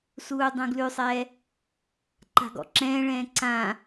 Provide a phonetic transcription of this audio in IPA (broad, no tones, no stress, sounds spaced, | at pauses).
s uː dˤ ũ ɡ l ʉ sˤ ɛː | ǃ a̤ ɡ ɔ̰ ǁ ɛ̃ː ɭ ɛ̃ː ǀ ã